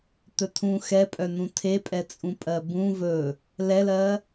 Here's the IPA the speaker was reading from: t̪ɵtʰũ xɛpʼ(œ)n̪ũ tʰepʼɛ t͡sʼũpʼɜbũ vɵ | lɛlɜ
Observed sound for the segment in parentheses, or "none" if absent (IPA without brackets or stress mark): œ